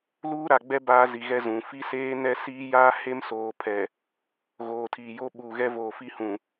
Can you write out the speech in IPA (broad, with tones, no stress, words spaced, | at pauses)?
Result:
luː˦ɾa˨ɡ͡bɛ˦ baː˦zi˨ɣɛ˦ zũ˨ fi˦ seː˦nɛ˦siː˦jaː˦ he˦msoː˨pʰɛ˨ | ɣoː˨tʰiː˨jo˦ ɓuː˨ɣɛ˦voː˨ fi˦hũ˨